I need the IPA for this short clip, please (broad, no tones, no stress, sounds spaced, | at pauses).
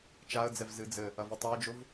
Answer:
t͡ʃ a ə̯ d͡z ɛ v z ɨ d͡z ɘ | ɐ v u tˤ o ə̯ d͡ʒ o v